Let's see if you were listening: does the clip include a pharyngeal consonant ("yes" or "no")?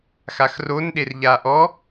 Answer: no